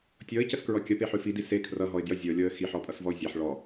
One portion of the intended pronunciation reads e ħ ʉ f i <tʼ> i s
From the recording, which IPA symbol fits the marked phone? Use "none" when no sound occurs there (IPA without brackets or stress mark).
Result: d